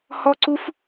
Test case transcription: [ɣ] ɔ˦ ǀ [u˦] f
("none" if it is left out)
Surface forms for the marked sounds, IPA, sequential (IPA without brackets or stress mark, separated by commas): h, u˦